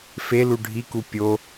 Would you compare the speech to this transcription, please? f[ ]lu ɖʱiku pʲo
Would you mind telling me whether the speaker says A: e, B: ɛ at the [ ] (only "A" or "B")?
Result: A